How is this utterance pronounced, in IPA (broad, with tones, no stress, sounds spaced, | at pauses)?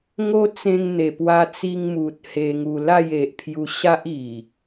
ŋ o˦ t͡s ẽ˧ ŋ n̪ e˨˩ p w a˧ t͡s i˧ ŋ m u˨ t̚ h e˧ ŋ u˧ l a˥˧ j e˨ ʔ pʰ j u˧ ɕ a˦ ʔ i˨˩